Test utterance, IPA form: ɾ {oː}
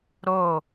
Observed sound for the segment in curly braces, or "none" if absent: oː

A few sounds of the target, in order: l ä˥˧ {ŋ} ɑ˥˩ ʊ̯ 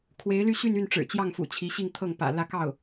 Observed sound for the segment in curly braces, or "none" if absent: k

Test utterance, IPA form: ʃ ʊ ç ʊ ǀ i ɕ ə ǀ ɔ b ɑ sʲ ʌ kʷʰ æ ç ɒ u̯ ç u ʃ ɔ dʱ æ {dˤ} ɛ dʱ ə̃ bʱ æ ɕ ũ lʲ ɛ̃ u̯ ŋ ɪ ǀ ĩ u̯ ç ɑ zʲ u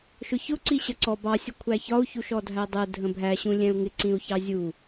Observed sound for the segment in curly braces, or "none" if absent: dˤ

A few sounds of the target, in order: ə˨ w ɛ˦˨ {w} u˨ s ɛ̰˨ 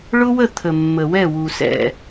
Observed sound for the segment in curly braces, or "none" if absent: w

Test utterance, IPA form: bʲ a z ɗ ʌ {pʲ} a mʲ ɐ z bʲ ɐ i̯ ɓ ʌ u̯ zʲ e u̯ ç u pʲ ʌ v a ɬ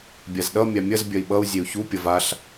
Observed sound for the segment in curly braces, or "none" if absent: mʲ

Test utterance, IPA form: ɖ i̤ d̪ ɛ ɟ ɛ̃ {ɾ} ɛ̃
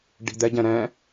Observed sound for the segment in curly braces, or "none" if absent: ɾ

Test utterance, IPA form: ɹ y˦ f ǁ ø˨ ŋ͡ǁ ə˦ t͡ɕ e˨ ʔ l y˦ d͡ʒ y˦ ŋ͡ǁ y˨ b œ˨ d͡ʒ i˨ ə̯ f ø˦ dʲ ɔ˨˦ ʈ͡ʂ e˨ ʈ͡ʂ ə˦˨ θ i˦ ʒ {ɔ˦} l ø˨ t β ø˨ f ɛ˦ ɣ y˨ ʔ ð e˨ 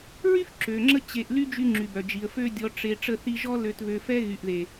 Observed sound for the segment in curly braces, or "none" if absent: ɔ˦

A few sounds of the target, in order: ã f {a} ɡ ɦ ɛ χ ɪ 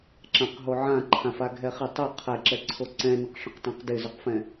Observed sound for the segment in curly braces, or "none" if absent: a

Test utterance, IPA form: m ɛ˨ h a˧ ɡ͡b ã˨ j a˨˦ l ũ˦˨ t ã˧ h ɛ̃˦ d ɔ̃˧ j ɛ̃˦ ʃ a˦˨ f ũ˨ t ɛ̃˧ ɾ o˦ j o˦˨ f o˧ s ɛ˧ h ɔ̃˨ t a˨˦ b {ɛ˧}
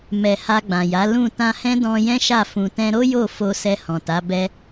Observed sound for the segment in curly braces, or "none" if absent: ɛ˧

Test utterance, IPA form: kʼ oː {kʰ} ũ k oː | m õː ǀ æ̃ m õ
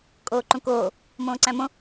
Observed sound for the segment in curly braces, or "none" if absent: ǃ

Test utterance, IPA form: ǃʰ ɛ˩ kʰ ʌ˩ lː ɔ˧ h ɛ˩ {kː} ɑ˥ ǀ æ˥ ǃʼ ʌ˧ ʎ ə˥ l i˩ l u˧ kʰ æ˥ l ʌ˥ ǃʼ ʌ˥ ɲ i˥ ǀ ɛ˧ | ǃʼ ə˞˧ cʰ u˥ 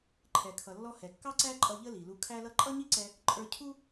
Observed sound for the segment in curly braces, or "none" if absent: kː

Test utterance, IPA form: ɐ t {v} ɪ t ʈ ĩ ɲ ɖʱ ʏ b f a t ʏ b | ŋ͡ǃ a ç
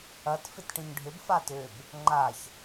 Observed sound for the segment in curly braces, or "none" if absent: f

